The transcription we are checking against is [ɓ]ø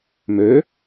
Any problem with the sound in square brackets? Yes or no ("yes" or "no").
yes